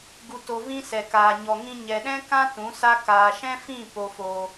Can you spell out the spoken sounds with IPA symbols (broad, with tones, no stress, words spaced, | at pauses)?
ɡu˧to˧vĩ˦ sɛ˨kaː˨ ɲɔ˨ŋĩ˧ ɲɛ˨ɗɛ̃˦ kã˦ tũ˨˦sa˦ kaː˨ʃɛ̃˦fĩ˦˨ po˦foː˦